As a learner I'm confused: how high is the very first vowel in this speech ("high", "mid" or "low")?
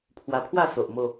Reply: low